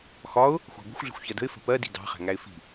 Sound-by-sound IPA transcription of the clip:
xɒʊ̯ | xʷɑ̤ɡʷə̤xʷ ɮə̤xʷçɜdə̤ɪ̯ fə̤pɜ di̤dɑ̤ χæ̤ŋæɪ̯fi̤

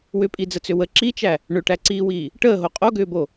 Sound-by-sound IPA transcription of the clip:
wʏpʼid͡zət͡sʏ wə ǁit͡ʃæ | ɳʏʈæǀiːwiː | ʈəːɦo qʼoɡʏːbo

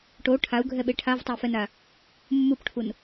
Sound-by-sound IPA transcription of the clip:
ʈo ʈʰau̯ɡʱɛɓe ʈʰavtˤʌi̯fɛna | mːupʈʰun

